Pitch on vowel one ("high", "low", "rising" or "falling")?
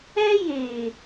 high